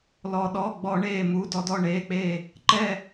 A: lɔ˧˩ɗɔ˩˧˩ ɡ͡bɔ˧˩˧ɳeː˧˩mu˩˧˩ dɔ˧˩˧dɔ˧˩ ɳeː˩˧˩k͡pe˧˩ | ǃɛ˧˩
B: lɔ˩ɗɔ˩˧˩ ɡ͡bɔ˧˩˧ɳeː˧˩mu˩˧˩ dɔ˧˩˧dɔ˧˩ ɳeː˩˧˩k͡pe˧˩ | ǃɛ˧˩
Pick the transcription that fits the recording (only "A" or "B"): B